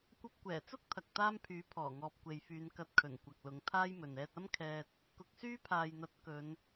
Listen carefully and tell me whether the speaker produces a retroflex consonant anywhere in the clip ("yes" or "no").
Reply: no